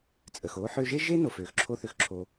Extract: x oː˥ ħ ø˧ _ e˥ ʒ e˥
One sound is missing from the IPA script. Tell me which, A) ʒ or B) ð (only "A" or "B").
A